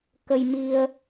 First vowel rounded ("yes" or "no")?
no